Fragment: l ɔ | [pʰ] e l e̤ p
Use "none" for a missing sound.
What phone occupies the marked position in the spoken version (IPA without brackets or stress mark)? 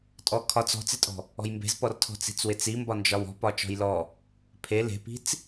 pʰ